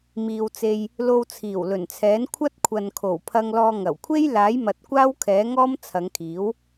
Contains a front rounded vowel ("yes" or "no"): no